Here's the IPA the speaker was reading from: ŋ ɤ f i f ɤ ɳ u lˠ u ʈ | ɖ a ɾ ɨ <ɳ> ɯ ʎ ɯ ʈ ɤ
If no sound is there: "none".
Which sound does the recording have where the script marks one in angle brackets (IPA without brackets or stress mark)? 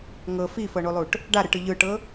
ʈ